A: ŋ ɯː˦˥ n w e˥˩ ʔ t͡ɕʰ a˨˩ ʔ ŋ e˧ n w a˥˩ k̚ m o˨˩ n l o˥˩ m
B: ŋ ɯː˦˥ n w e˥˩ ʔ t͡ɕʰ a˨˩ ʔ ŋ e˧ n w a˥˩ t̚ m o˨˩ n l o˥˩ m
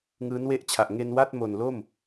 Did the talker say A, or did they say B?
B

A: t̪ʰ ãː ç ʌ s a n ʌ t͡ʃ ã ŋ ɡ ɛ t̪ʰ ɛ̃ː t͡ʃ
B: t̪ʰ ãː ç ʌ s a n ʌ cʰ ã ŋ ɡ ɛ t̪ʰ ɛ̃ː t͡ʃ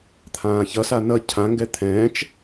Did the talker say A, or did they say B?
B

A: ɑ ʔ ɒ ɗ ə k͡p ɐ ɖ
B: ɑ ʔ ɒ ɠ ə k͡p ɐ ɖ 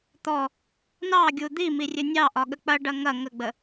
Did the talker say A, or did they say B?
B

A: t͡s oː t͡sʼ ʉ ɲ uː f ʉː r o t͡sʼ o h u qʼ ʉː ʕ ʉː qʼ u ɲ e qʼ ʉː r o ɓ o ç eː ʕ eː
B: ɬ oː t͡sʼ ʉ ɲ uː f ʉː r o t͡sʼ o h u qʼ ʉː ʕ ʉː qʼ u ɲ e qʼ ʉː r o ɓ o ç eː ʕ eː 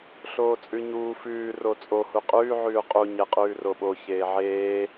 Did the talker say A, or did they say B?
B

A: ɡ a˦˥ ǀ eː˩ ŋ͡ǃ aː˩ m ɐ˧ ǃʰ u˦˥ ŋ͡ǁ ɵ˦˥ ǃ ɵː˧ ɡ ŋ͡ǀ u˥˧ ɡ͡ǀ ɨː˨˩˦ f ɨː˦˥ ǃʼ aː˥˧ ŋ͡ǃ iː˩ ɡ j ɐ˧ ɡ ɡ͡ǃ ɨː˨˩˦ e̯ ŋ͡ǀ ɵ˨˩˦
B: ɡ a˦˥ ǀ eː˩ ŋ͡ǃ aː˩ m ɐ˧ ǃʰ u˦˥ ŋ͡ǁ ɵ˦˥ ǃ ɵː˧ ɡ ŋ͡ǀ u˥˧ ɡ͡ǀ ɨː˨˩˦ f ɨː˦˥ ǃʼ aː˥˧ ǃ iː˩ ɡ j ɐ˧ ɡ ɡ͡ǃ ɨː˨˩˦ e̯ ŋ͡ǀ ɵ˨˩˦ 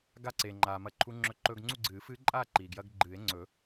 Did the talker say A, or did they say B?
B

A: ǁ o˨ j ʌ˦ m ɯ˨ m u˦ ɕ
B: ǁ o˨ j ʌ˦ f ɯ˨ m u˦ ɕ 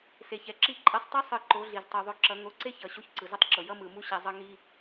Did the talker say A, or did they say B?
A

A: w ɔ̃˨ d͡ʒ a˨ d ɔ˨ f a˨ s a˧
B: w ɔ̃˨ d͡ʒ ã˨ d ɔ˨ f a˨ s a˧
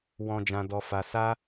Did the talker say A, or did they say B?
B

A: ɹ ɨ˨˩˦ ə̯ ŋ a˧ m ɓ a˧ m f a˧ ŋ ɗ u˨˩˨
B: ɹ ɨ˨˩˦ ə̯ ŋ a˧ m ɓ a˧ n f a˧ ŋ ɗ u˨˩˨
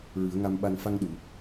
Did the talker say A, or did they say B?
B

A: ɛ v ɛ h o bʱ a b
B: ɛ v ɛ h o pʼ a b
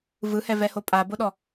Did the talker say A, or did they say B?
B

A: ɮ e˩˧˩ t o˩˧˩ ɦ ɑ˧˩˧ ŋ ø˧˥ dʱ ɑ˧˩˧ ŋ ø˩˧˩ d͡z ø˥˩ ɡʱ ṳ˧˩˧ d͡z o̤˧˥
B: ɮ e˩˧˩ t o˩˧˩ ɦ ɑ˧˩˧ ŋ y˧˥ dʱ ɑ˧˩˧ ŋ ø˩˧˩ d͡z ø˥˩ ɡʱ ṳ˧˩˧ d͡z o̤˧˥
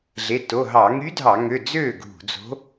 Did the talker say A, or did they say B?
B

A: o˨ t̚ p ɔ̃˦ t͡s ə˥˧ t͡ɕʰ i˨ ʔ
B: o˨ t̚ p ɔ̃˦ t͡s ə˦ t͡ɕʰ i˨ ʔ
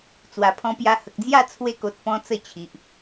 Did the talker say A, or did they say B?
A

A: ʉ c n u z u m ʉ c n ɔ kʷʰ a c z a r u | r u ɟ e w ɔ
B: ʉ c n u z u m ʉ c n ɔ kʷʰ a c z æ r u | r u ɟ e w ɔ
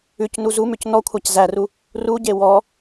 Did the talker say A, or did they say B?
B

